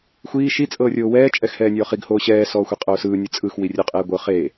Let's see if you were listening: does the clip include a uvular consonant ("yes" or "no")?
yes